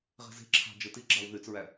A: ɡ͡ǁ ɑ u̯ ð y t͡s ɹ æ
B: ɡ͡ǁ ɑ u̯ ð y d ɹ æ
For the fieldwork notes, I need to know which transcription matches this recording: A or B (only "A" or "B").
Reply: A